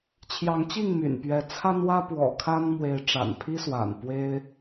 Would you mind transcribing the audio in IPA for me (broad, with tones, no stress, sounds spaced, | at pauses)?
t͡ɕʰ j ɑ˨˦ ŋ t͡ɕ i˥˨ ŋ m y̰˨˩ n p ɥ ɛ˨˦ t͡sʰ a˦ n w ä˦ p w ɔ̰˨˩ kʰ a˦ n m w e˨˦ ɪ̯ ʈ͡ʂ a̰˨˩ n pʰ i˦ s w a̰˨˩ n p w e˦ ɪ̯